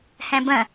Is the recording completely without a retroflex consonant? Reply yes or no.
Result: yes